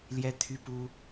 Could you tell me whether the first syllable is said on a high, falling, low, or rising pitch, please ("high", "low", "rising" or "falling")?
high